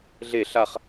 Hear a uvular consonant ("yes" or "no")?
yes